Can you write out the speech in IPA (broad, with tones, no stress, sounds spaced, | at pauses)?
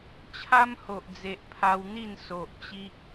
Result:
t͡ɕʰ a˦ m h o˨ ʔ d͡z e˨ ʔ pʰ a˧ w n̪ i˥˧ n s o˨ ʔ t͡ɕ i˦ k̚